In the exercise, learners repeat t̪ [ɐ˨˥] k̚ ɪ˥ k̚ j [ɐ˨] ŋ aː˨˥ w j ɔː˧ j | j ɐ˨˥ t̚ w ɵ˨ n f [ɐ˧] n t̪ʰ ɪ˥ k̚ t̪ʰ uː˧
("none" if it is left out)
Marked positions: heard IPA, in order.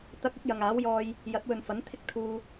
ɐ˧, ɐ˨, ɐ˨˥

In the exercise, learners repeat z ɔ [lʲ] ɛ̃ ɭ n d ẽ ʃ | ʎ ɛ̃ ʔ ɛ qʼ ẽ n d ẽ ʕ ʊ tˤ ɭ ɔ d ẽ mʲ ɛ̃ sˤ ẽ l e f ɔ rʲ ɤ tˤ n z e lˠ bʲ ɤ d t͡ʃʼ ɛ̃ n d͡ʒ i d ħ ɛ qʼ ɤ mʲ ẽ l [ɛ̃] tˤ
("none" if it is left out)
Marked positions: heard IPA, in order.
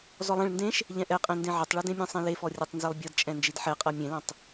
lˠ, ɛ̃

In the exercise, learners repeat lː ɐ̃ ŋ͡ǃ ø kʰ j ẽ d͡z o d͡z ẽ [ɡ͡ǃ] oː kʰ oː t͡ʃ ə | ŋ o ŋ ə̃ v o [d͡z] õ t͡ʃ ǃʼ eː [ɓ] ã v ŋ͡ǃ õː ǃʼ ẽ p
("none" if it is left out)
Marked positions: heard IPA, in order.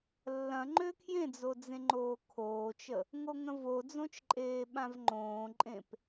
ŋ͡ǃ, d͡z, ɓ

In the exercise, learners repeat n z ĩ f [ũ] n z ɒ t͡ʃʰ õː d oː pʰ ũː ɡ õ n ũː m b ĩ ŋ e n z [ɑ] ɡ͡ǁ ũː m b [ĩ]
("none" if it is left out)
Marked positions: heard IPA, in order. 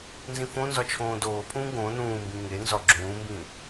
õ, ɒ, ĩ

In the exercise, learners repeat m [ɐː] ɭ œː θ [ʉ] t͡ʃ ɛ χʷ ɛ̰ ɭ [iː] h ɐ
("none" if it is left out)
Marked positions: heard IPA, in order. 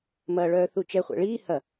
ɐː, u, iː

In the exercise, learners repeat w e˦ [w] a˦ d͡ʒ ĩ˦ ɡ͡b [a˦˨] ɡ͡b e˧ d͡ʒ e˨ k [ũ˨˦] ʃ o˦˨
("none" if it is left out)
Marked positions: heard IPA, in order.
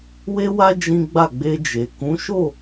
w, a˦˨, ũ˨˦

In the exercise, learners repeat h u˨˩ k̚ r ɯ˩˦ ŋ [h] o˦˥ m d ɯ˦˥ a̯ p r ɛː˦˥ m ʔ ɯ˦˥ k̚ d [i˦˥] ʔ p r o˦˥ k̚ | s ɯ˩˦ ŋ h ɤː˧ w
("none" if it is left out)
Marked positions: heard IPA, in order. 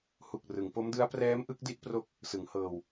p, i˦˥

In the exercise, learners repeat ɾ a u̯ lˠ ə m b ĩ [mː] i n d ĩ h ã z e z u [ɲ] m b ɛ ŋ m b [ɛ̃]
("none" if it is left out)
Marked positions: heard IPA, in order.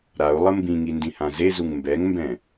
ŋ, ŋ, ɛ̃

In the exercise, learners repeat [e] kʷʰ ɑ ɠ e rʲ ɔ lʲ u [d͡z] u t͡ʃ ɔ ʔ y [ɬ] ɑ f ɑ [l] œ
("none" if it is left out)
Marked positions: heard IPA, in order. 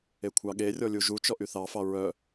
e, ʒ, θ, ɹ

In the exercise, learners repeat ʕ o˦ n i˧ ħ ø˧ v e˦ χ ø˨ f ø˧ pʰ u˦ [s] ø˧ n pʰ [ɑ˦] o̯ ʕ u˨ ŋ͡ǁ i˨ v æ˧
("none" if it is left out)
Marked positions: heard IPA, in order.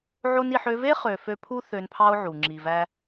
θ, ɑ˦

